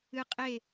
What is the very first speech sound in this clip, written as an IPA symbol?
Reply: ɨ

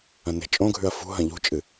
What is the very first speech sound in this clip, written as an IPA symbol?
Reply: ɐ̃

